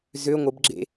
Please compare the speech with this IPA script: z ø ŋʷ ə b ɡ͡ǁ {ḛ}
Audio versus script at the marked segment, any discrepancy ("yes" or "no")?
no